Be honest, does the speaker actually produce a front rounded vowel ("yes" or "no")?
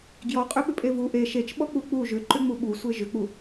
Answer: yes